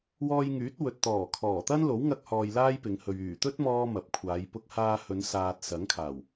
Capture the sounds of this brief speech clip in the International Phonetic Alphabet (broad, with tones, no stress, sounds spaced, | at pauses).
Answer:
w ɔː˧ j ŋ yː˨˥ t̚ w ɵ˨ t̚ t̪ ɔː˨˩ kʰ ɔː˨˩ t̪ ɐ˥ n l o˨˥ w ŋ ɐ˧ k̚ h ɔː˨ j l aː˥ j p ɪ˨˧ ŋ h ɵ˨ ɥ yː˨˩ t̪ ɵ˥ t̚ m ɔː˧ m ɐ˨˥ p̚ kʷʰ aː˨˧ j p ʊ˧ k̚ h aː˧ h ɵ˨˧ n s aː˨ t̚ s ɐ˨˥ ŋ kʰ aː˨˩ w